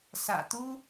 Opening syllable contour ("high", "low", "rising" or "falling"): low